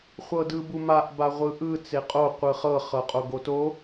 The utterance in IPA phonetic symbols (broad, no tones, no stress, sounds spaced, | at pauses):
χʷ ɤ d ɯ b u m a ʔ b a ʁʷ ɯ ʔ ɯ t͡s e qʼ o qʷ ɯ χ ɤ χ ɤ qʼ o ɡ o t o